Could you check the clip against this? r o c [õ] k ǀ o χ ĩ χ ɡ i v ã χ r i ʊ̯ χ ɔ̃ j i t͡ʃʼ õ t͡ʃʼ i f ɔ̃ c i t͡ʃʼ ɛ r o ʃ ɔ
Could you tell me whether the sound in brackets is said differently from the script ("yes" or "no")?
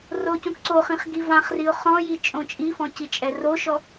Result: no